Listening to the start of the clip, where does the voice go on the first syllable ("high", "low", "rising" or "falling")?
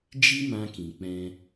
high